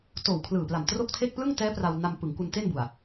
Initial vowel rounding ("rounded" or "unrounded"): rounded